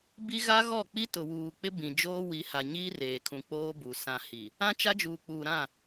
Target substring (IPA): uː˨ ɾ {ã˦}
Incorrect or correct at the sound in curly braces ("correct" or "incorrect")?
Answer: incorrect